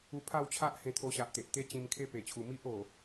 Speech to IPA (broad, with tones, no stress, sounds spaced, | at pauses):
u˧ pʰ a˥˧ w t͡ɕʰ a˦ ʔ h ẽ˧ t̪ʰ o˧ ɕ a˨ ʔ t̪ e˨ ʔ t̪ e˦ t͡ɕ ĩ˧ m kʰ e˦ p e˨˩ t͡ɕʰ u˨˩ m i˦ ʔ o˨˩